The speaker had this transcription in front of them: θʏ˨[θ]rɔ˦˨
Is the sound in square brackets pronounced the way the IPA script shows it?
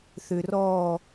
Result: no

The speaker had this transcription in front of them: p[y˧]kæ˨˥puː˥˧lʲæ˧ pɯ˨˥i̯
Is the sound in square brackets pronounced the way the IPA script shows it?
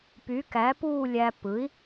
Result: no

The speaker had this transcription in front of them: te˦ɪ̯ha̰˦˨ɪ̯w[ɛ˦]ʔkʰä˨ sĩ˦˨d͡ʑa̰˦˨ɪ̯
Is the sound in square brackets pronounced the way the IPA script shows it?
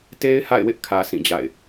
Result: no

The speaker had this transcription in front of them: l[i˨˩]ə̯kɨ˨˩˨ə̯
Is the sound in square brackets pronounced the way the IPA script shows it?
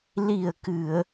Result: yes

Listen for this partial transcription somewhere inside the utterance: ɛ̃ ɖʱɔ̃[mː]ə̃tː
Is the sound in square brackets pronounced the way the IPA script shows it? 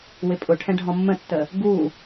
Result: yes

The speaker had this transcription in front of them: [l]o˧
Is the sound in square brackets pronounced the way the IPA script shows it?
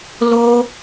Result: yes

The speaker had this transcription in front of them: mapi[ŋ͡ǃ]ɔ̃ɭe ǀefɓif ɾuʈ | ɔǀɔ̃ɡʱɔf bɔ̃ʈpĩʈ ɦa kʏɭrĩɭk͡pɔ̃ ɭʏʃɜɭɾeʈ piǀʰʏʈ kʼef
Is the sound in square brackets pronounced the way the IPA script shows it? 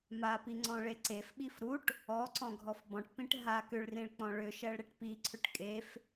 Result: no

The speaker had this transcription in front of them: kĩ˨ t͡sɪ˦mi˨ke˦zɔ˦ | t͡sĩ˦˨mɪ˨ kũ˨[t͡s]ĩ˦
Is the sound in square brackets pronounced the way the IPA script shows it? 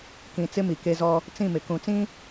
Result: yes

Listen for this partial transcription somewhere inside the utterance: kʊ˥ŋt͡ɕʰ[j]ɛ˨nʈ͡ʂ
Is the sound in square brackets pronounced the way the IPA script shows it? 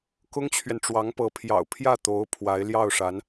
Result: no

